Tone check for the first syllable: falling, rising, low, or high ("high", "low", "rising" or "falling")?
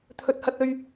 low